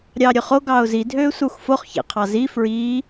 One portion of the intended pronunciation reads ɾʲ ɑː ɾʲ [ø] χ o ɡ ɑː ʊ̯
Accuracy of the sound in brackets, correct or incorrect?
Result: correct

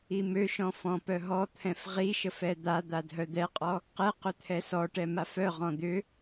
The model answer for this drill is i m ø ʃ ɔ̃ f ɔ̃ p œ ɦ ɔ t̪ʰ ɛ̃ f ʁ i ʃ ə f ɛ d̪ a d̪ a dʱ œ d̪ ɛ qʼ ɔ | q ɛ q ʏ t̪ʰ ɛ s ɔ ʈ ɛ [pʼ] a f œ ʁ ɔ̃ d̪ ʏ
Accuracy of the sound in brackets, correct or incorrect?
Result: incorrect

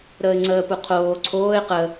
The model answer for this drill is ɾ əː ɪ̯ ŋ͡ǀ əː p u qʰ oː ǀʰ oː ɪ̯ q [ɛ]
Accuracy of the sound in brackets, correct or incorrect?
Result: incorrect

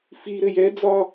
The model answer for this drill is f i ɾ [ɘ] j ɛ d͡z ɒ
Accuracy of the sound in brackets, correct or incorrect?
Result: correct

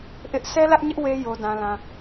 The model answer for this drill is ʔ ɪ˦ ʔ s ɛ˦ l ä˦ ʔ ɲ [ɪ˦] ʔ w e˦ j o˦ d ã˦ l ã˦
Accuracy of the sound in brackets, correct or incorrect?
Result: correct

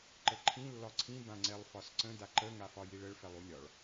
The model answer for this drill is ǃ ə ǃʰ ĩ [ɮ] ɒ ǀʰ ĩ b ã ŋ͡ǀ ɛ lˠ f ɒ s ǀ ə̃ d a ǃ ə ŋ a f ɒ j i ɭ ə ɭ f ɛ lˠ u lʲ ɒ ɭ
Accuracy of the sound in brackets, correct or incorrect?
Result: incorrect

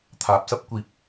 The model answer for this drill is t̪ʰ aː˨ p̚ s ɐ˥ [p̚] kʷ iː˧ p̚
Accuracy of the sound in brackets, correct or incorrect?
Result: correct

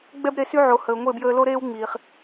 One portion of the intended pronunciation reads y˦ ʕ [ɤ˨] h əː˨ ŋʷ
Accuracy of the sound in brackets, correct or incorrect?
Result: incorrect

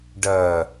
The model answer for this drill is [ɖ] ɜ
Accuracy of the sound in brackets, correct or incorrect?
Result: correct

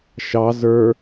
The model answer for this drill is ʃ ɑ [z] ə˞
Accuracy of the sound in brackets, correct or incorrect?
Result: correct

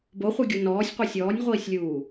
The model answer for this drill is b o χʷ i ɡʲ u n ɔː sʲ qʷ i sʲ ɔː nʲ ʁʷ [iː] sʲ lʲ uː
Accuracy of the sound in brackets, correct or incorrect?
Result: correct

